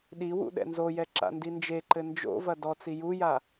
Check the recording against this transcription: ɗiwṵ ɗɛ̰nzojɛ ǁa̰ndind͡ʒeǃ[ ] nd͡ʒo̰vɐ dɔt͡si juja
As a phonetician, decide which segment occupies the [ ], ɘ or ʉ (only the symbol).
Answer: ɘ